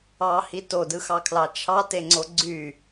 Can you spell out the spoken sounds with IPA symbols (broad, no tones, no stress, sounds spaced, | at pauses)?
ɑ h i t o d ɯ x ɑ kʰ l ɑ t͡ʃʰ ɑ t e ŋ͡ǀ o ɡ͡ǀ y